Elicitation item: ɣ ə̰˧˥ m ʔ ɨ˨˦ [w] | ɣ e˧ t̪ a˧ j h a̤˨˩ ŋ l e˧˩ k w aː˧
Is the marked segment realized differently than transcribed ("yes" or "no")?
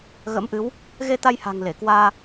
no